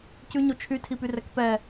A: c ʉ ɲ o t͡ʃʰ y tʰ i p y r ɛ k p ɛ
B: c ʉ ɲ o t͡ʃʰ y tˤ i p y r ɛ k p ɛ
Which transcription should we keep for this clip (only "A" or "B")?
A